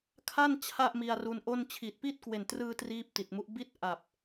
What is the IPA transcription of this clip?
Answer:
kʰ a˥˩ n t͡ɕʰ a˥˩ ʔ m i˧ a̯ r u˧ n ʔ o˥˩ n t͡ɕʰ i˨˩ t̚ p i˥˩ t̚ k w e˨˩ n t r ɯː˧ t r iː˥˩ p̚ t i˨˩ t̚ m u˦˥ ʔ b i˥˩ t̚ ʔ a˨˩ p̚

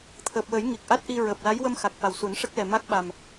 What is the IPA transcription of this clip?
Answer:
t̪ʰ əː˨˩ p̚ w əː˨˩˦ j ŋ i˨˩ k̚ ʔ a˦˥ t̚ ʔ i˧ ɹ əː˨˩ p̚ l a˧˥ j w ə˧ m x a˨˩ k̚ f a˨˩ w s u˨˩˦ n ʂ ə˦˥ k̚ l ɛ˨˩ m a˦˥ k̚ ɓ a˨˩ m

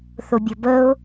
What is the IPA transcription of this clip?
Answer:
θ ʊ bʲ ʊ b ə ʊ̯

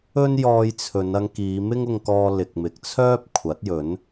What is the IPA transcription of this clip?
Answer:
ɵ˥ n j ɔː˧ j t͡sʰ ɵ˨˧ n ɐ˧ ŋ k iː˨˧ m ɪ˥ ŋ ʊ˧ ŋ k ɔː˧ l ɪ˨ k̚ m ɪ˨ k̚ t͡sʰ œː˥ p̚ kʷʰ ɐ˨˥ t̚ j ɵ˨˥ n

